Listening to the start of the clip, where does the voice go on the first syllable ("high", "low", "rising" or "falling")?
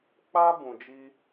high